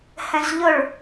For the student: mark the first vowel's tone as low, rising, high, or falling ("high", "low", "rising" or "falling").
high